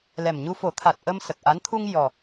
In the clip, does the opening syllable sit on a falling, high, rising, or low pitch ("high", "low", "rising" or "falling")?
low